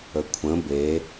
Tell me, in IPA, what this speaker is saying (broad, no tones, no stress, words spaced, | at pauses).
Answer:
əkʷʰə̃ be